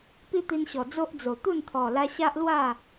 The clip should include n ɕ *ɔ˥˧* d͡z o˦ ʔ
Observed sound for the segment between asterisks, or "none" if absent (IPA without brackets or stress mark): ɔ˨˩